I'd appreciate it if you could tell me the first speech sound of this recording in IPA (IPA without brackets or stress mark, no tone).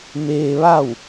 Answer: m